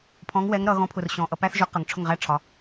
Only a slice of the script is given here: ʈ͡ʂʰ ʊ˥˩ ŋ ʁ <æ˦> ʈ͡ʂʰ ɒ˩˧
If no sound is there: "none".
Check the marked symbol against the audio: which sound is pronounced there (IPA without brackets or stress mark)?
æ˦